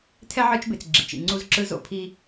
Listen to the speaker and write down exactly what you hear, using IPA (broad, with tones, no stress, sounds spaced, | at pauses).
tʰ ɛ˦ ʕ ɯ˦ t͡ʃ b e˨ t͡s ɡ͡ǁ ḭ˨ t͡ʃ ḭ˨ ŋ͡ǀ u˦ z ǁ ɯ˦ z o̰˨ pʰ i˦